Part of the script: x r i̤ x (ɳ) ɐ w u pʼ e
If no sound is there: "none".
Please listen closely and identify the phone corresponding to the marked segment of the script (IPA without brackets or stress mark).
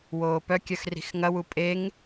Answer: ŋ